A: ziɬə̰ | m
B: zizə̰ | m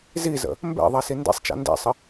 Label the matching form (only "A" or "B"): B